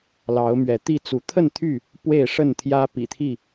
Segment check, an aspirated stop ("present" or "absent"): present